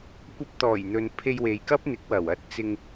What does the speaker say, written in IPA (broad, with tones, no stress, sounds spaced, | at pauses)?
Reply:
kʷ ɐ˧ p̚ t̪ ɔː˨˩ j n̪ ɵ˨ n pʰ e˧ j w e˨ j k ɐ˥ p̚ n̪ ɪ˨˥ k̚ w ɐ˨˩ w ɐ˧ t̚ t͡s ɪ˧ ŋ